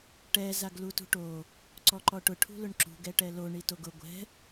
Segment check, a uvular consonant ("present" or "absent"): absent